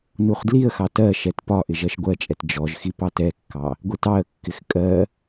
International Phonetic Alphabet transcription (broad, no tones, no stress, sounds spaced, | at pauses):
n u χ d l i ə̯ x ɑ t ɜ ʃ ɛ t p ɒ ʔ ɪ ʒ ɜ ʃ ɡʷ ɜ t͡ʃʼ ɛ t d͡ʒ ɔ ʒ x i p ɑ t ɛ kː ɑ | ɡʷ i t ɑ ə̯ kː ɪ x kʼ ɜ